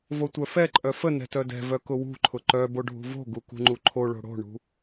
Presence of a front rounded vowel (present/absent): present